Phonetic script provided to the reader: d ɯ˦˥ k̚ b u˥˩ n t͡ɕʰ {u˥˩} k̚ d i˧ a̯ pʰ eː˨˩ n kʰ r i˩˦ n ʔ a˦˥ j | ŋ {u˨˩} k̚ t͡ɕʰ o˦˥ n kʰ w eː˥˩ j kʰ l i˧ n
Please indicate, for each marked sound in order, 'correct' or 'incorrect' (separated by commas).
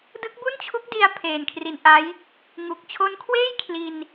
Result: incorrect, correct